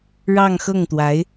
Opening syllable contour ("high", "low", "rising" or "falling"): falling